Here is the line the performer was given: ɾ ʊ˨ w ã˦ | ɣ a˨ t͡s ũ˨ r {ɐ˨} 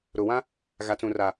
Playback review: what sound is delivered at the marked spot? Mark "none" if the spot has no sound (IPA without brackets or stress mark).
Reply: a˨